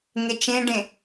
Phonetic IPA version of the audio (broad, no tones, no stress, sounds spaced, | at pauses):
ŋ e t͡ʃ ẽ ɖ ẽ